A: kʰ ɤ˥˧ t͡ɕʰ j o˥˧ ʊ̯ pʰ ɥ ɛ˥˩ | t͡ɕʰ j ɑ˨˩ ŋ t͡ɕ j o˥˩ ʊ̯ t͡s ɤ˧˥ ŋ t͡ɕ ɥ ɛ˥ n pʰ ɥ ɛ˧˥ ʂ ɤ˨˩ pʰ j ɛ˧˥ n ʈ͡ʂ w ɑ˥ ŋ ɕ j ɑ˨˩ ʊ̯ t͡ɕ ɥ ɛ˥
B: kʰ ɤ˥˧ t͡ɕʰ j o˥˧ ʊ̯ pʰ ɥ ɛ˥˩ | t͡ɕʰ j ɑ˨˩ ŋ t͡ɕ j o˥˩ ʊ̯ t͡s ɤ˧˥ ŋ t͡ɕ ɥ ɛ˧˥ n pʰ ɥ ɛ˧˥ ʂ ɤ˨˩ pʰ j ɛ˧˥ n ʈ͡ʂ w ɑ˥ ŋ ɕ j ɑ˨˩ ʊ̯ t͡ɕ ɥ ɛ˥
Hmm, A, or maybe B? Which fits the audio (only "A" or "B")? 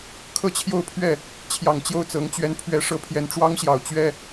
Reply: B